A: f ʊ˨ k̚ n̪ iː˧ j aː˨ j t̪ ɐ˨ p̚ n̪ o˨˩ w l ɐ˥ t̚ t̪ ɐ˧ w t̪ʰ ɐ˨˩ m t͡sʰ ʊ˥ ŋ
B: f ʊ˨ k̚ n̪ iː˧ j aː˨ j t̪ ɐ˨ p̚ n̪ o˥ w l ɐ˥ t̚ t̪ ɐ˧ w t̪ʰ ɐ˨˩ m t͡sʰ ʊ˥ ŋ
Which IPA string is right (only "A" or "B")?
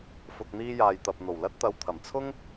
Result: A